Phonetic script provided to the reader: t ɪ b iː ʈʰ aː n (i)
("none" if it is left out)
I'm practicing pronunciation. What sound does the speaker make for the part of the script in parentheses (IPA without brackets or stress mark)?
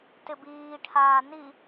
i